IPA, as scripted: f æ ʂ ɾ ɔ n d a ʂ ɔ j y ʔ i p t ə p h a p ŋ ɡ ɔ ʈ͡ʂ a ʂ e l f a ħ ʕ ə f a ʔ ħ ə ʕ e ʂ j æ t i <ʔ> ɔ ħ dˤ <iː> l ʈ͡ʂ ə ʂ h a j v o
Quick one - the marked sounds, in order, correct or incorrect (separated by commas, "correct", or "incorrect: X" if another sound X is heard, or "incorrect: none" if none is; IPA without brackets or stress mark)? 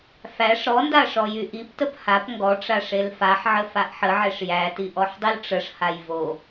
correct, incorrect: i